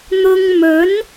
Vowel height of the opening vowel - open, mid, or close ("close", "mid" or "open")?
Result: close